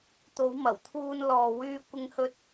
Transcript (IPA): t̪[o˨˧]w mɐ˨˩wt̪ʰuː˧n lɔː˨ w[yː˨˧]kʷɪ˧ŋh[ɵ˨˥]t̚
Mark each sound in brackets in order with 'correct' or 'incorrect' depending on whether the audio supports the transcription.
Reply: correct, incorrect: yː˧, incorrect: ɵ˧

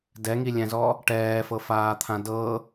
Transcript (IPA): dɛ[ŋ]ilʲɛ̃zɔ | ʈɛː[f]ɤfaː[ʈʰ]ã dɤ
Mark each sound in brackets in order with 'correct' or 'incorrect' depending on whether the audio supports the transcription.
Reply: correct, correct, incorrect: t̪ʰ

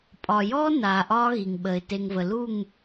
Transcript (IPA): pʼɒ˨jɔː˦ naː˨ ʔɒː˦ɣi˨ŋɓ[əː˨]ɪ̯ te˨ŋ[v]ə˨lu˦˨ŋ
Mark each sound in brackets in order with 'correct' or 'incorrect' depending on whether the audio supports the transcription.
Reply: correct, correct

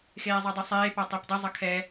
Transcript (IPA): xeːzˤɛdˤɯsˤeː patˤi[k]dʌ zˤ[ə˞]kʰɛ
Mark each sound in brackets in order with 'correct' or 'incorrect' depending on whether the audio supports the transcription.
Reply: incorrect: p, incorrect: ʌ

